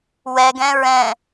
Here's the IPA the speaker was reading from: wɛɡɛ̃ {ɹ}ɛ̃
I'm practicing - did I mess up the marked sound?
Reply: no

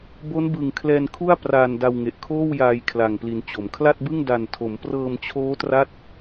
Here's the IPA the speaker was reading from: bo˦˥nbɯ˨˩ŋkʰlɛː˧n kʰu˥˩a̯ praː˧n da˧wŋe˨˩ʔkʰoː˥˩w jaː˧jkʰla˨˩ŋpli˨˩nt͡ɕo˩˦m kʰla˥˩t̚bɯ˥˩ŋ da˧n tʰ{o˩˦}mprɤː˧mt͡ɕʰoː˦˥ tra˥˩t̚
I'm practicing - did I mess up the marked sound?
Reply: no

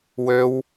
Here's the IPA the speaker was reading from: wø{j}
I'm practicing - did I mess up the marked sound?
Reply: yes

